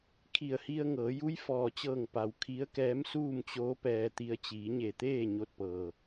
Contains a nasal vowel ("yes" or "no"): no